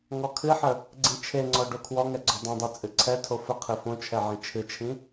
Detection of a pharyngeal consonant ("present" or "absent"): present